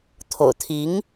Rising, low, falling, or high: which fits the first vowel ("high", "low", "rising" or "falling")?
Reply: low